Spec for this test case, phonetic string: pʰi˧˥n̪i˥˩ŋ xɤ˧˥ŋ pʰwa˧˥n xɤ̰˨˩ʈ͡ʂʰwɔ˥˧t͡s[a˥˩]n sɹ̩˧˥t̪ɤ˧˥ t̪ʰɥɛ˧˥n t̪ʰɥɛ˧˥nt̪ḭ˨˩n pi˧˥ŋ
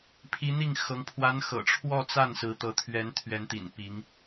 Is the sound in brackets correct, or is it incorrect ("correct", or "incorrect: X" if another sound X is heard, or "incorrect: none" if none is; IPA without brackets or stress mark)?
correct